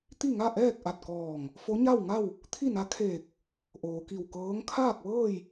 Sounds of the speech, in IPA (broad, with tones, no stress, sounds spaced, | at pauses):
t̪ i˥˨ ŋ a˥˨ ʔ ɛː˥˨ k̚ ʔ a˧˩ t̚ k ɔː˧˩ ŋ | f o˧˥ ɲ a˥˨ w ŋ a˥˨ w | t̪ʰ i˥˨ n a˧˥ kʰ eː˧˩ k̚ | ʔ oː˩ k i˧˩ w k ɤː˧˥ ŋ kʰ aː˥˨ k̚ ʋ ɤː˥˨ j